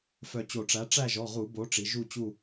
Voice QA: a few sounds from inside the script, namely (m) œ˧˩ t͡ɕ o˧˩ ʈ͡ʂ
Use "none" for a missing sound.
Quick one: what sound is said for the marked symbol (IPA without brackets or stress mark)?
f